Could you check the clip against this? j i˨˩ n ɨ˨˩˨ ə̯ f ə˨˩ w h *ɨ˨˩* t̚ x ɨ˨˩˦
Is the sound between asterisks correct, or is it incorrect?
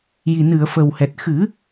incorrect